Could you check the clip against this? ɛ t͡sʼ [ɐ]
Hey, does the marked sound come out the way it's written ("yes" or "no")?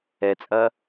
yes